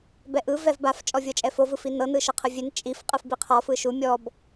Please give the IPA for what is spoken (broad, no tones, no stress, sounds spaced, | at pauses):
b ɛ ʔ ɯ v ɛ v b a f t͡ʃʼ ɔ vʲ ɤ t͡ʃʼ ɛ f o v ɯ f i n ɤ n ɯ ʃ ɤ qʰ ɯ vʲ e n t͡ʃʼ i f qʼ ɯ f b i qʰ ɔ f ɯ ʃ u mʲ ɔ b